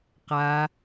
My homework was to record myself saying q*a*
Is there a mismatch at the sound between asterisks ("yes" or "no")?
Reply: no